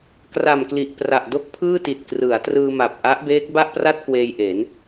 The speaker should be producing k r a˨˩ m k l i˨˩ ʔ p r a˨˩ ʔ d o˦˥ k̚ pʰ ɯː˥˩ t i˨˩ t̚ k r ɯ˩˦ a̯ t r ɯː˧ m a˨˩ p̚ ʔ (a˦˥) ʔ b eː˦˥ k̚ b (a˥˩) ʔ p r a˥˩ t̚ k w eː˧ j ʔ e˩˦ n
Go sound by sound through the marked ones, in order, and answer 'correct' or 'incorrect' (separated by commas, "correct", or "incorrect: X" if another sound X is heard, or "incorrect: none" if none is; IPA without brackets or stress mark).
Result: correct, correct